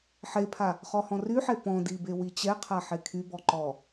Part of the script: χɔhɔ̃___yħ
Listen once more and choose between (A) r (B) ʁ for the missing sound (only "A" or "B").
A